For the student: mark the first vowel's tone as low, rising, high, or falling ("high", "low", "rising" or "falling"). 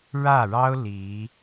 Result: falling